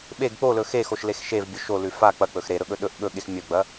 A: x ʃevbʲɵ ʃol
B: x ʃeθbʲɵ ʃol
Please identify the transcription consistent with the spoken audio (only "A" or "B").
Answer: A